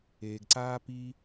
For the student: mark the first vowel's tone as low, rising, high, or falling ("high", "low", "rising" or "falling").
low